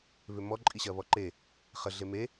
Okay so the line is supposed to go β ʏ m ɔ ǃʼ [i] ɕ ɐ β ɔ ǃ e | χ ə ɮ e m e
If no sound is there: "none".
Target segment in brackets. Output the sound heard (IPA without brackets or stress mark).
i